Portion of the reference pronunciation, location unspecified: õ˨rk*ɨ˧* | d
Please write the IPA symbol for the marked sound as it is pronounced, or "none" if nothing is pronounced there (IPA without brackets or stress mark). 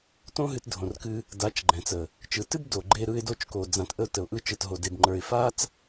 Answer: ɨ˦